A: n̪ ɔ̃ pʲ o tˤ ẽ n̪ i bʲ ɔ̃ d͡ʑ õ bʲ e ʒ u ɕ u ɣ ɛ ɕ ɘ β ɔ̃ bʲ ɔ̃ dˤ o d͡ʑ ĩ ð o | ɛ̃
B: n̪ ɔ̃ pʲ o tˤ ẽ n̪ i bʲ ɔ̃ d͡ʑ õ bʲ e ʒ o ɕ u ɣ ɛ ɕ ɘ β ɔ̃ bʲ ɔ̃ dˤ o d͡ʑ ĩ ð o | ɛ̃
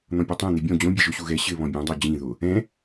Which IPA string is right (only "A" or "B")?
B